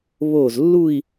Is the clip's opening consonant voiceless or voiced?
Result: voiced